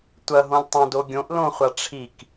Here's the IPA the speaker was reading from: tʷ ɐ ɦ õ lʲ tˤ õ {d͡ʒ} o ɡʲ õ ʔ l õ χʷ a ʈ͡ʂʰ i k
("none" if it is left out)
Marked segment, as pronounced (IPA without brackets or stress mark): d